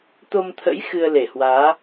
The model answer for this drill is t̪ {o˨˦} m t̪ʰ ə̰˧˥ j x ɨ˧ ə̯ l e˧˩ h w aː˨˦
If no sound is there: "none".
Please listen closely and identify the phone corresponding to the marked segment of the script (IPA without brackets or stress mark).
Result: o˧